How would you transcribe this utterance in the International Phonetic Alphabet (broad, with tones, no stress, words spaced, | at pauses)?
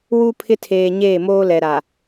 wu˦ pʰɪ˦tʰeː˨ ɲeː˦˨moː˦lɛ˨ ɾa˨